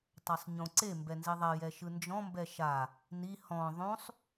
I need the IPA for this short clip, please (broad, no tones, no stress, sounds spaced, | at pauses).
tˤ a sˤ ɲ õ ǀ e m b ɛ n z i ðˤ ɛ j ɛ ʃ ɯ n d͡ʒ ɔ̃ m b ɛ ʃ a | n i h ɔ̃ ðˤ õ sˤ